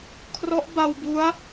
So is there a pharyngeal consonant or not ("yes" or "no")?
no